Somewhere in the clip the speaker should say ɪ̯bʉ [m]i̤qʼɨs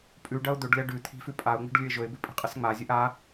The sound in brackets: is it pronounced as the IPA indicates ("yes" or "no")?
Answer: no